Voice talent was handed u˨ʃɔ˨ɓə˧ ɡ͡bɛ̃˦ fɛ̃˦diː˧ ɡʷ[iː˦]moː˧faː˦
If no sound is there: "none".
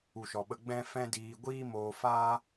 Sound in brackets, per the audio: iː˦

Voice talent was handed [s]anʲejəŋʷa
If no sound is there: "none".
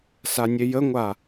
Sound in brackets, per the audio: s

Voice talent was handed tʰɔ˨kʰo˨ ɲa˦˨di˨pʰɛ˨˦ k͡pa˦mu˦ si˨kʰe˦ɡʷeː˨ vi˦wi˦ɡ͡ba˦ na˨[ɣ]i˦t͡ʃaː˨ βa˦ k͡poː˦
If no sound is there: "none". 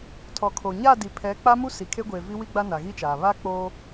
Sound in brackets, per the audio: ɣ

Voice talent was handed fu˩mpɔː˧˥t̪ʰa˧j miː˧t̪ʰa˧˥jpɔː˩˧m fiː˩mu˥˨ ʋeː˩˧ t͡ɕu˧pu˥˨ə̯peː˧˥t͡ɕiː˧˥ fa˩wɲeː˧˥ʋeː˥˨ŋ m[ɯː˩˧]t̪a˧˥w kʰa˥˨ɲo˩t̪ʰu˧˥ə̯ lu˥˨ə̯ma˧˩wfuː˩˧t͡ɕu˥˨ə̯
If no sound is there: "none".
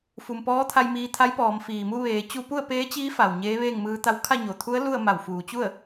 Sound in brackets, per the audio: ɯː˧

